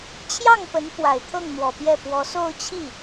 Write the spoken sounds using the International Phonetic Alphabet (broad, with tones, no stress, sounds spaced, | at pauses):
t͡ɕʰ j ɑ˥˩ ŋ p ə˧˥ n p w a˨˩ ɪ̯ t̪ʰ ɤ˥˩ ŋ n̪ w ɔ˨˩ p j ɛ˥˩ p w ɔ˧˥ s o˥˧ ʊ̯ t͡ɕʰ i˥˩